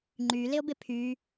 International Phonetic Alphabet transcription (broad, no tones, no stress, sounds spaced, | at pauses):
ŋ͡ǃ y l ɪ o̯ b ɪ pʰ y